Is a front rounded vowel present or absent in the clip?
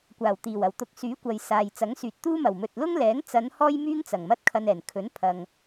present